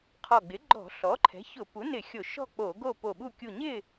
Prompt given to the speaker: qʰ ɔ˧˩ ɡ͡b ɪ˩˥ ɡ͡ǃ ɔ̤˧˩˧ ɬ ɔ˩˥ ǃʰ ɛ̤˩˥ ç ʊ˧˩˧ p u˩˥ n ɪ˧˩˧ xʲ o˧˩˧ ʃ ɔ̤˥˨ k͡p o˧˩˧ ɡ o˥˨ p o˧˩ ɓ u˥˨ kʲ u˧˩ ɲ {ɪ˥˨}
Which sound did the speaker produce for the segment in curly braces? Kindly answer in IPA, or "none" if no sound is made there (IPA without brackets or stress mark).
ɪ˥˨